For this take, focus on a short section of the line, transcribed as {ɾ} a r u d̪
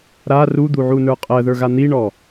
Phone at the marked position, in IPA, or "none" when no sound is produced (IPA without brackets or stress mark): ɾ